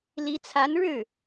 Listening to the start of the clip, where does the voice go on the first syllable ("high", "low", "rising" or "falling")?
rising